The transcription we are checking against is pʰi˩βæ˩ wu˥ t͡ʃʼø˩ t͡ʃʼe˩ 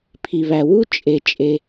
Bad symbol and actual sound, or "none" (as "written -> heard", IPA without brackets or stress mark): ø˩ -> e˩